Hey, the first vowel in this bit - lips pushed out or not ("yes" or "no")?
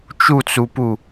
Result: yes